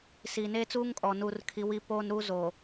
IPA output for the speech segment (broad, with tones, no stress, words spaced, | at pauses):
si˨ neː˦t͡suː˦ŋkʼɔ˨ nuː˨rkʰi˨ wi˦poː˦n ɾuː˦zoː˨